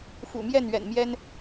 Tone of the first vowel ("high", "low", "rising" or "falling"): low